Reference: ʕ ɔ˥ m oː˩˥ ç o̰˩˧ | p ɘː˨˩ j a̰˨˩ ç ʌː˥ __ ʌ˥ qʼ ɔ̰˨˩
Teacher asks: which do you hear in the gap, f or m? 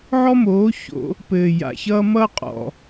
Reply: m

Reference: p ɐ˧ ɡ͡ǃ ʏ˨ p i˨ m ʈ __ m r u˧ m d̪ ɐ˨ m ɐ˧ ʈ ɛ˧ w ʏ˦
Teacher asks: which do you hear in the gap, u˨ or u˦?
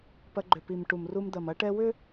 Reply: u˨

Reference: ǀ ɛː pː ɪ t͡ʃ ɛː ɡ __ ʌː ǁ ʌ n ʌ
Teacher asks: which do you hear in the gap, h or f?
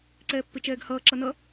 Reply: h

